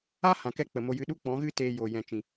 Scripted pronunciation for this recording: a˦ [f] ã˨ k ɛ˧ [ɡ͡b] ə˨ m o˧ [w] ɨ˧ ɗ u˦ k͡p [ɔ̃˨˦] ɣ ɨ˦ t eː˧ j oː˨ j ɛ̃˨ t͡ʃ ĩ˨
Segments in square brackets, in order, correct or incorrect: incorrect: h, incorrect: k͡p, incorrect: j, correct

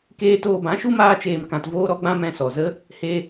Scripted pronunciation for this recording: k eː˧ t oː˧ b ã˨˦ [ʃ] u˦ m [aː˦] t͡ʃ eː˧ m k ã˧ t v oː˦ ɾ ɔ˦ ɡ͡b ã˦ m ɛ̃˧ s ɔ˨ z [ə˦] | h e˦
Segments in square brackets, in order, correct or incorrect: correct, correct, correct

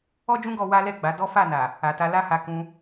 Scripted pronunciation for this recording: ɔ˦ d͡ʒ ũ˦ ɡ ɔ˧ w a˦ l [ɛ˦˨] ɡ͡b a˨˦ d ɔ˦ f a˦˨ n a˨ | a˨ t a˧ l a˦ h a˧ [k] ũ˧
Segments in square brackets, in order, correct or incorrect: correct, correct

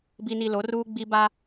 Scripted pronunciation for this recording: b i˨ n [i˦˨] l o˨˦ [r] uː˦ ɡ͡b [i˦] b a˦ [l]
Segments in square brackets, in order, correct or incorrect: incorrect: i˨, correct, correct, incorrect: none

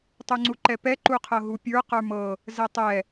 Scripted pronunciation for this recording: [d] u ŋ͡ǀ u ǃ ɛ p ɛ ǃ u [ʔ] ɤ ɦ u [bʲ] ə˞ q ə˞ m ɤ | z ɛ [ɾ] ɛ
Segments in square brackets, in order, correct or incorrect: incorrect: tˤ, incorrect: qʰ, incorrect: pʲ, incorrect: tˤ

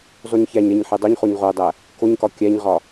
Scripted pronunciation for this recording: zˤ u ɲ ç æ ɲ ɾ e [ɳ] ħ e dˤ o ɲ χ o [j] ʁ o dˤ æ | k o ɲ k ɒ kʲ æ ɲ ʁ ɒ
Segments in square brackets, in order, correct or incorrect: incorrect: ɲ, incorrect: ɲ

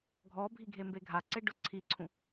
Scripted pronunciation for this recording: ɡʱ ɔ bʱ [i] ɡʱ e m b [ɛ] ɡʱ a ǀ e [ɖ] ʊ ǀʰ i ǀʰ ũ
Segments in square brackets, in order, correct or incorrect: correct, incorrect: e, correct

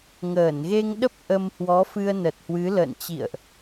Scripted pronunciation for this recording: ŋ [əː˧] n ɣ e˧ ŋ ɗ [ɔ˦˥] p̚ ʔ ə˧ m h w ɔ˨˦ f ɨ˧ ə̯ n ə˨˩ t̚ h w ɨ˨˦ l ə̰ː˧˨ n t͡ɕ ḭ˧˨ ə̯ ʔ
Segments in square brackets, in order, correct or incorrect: incorrect: əː˧˩, incorrect: ə˦˥

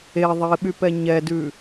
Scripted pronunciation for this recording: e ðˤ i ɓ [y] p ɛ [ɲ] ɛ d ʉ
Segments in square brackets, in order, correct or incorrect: correct, correct

